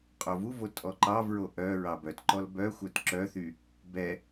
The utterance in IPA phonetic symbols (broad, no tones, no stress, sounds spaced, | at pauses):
qʼ o v u v o tʼ ɔ ǃ ɑ v ɹ o ʔ œ ɹ ɑ b œ t ǃ ɔ l b œ xʷ œ t ǁ œ θ y | b ɛ